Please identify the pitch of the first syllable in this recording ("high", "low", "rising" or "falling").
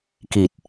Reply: low